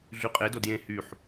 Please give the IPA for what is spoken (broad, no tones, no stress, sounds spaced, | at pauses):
ɮ y qʼ e d o d j ẽ h y ħ